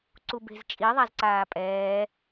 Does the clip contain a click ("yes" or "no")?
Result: yes